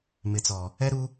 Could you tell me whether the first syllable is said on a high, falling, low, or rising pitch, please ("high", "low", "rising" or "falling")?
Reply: low